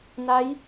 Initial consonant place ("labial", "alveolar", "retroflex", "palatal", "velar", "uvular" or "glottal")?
alveolar